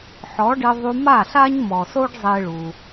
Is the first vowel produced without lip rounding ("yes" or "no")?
no